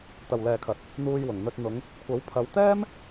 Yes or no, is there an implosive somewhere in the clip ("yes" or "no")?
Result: no